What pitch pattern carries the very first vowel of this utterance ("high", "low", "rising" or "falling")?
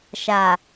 low